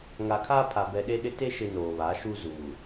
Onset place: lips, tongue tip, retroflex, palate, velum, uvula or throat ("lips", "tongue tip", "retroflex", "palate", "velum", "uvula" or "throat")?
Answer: velum